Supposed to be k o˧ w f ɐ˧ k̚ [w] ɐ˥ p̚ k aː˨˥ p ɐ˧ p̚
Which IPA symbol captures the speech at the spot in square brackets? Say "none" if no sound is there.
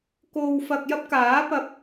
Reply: j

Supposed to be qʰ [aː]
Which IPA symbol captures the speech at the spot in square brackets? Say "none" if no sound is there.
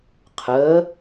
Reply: əː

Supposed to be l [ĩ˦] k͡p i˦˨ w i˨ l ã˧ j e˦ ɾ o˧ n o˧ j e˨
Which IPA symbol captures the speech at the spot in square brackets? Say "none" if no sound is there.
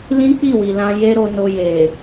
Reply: ĩ˦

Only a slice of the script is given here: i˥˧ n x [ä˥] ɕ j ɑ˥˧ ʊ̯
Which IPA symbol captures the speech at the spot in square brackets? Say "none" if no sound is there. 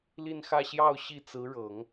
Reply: ä˥˧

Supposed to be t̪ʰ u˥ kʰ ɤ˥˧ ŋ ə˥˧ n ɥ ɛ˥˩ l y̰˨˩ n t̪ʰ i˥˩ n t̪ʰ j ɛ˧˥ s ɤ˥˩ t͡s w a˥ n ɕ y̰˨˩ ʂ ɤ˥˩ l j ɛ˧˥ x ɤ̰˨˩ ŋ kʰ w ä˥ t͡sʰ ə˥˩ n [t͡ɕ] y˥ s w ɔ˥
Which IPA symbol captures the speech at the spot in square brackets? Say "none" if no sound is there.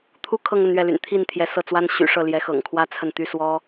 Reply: t̪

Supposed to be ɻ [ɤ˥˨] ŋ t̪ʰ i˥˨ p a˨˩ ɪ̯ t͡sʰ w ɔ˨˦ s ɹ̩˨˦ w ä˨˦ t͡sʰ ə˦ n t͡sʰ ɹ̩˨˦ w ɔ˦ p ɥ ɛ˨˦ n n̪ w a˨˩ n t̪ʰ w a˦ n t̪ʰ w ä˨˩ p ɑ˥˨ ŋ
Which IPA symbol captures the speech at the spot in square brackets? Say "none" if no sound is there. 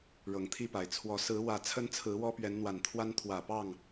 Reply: ɤ˨˩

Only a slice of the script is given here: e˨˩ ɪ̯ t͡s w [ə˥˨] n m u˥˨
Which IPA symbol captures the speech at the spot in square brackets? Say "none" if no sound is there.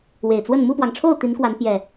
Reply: ə˥˨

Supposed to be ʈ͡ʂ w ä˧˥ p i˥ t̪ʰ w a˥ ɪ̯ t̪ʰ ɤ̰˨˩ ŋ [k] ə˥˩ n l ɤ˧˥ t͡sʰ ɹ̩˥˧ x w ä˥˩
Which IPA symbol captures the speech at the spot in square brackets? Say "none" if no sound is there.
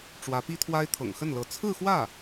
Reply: x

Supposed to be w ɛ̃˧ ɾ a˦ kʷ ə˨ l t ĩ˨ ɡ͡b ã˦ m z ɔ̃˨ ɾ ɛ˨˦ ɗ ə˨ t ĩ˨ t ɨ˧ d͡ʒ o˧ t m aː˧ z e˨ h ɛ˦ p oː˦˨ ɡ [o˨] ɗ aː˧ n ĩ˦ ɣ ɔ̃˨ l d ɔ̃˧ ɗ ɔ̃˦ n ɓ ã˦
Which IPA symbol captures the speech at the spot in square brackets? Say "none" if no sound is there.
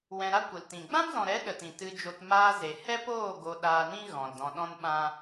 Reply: o˧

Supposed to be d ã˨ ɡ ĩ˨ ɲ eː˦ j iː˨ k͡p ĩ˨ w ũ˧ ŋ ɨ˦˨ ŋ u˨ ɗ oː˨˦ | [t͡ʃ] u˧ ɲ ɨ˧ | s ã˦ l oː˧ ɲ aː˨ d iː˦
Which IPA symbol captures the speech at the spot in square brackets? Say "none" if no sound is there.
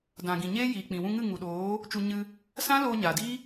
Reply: t͡ʃ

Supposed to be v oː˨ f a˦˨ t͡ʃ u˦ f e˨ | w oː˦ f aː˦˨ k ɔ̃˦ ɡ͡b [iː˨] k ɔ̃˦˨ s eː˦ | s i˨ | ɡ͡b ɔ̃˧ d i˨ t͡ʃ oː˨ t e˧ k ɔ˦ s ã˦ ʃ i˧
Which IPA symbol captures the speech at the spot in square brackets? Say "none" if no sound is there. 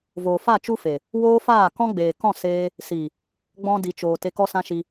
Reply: eː˨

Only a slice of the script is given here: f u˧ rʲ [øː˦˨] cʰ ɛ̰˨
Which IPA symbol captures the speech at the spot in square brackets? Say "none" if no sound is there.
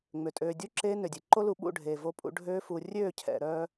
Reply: øː˦˨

